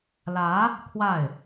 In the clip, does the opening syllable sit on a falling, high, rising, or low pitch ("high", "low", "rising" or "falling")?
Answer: rising